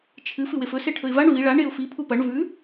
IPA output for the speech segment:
t͡ʃʰ ɨ f ɨ w e f ɵ s e ʈʰ ɵ ɪ̯ v a ɳ v i ɭ a ɳ e ʊ̯ f i pʰ u p ɐ ɳ v ʉ

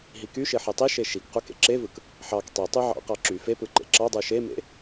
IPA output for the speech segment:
ɦ i k y ʃ e ħ e tˤ i ʃ e ʃ i k q u k ḛ ǁ e v ɯ k | ħ ɑ k tˤ e tˤ y ʕ ɑ̰ q ɑ ǁ y f e p ɯ ǃ ḛ ǁ ɑ dˤ u ʃ e m ḛ

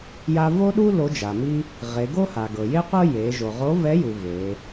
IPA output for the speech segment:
j a˧ v o˥ ɗ u˥ l o˧˥ d͡ʒ a˩ m i˥ | ʁ e˩˧ ɡ o˥ h a˩ ɡ ɤ˩ j e˥ qʷ ɤ˥ j e˩˧ ʒ o˩ ʁ o˧˥ v ɛ˧˥ j u˩ v e˩˧

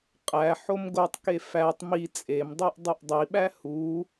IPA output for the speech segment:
qʼ æ ħ o m ɡ o tˤ k e f æ tˤ m i t͡sʼ e m dˤ i ʔ dˤ u ʔ dˤ i ɓ æ h u

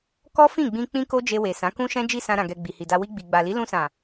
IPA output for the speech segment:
k ɔ˦ f ĩ˦˨ ɡ͡b ĩ˧ k͡p ĩ˦ k o˦ d͡ʒ e˧ w e˨ s ã˨˦ k ũ˦ ʃ ɛ̃˦ d͡ʒ i˦˨ s ã˧ ɾ ã˨ ɡ ɛ˨ ɡ͡b i˨ h i˨ d a˧ w i˧ ɡ͡b i˨ ɡ͡b a˨ l i˨˦ l ũ˧ s ã˨

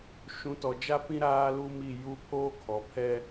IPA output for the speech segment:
ʃ ũ˨˦ t ɔ˨ d͡ʒ a˦ p ĩ˦ ɾ aː˦ l u˦ m i˦˨ j u˦ pʰ oː˦ kʰ ɔ˨ pʰ ɛ˦

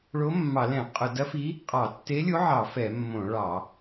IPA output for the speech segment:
ɭ o˧˥ mː ɑ˧˩˧ l ɛ̃˧˩˧ qʼ ʊ˧˩˧ d ɐ˧˥ f i˧˥ | qʼ ɑ˧˩˧ tː e˧˥ lʲ o˧˥ ʕ ɑ˧˩˧ f ɛ˧˩˧ mː õ˧˩˧ ɭ ɑ˧˩˧

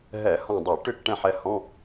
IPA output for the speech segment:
ɦ ɛ˧˩˧ h ɔ̃˦˨ dˤ i˧˩˧ ʈ ʏ˦˨ k ʈ ɛ̃˦˨ ħ ɛ˨˦ h ɔ̃˧˥˧

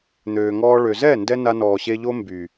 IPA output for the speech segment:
n̪ øː˨ ŋ ɔː˧ ɭ ø˨ z ɛ˦˨ n d ɛ˧ n a˧ n ɔː˨ ɕ e˧ ʎ o˦ m b y˨

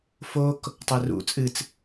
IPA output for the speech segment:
f o k | tˤ ɛ r ṵ t͡sʼ ɨ t͡s

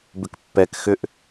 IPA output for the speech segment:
b ʏ k pː ɛ k x ʏ ʔ

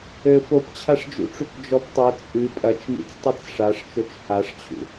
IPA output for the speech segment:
ɘ f o p t͡ɕʰ a ʂ d͡ʒ ṵ ʈ͡ʂ u k d͡ʒ ɔ p tˤ o t͡sʼ ɨ pʼ ɐ t͡ʃ m ḭ t͡s tˤ ɨ t͡s ʂ a ʂ t͡ʃ o t͡ʃ h a ʂ t͡ɕʰ ṵ

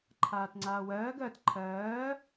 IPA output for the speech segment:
ǃʰ aː t ŋ͡ǀ aː w ɜː ɡ ɜ t ǃʰ ɜː

